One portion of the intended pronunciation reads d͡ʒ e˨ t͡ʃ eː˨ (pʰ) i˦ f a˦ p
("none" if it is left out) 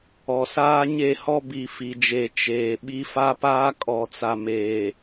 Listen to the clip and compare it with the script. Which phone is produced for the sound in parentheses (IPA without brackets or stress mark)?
ɓ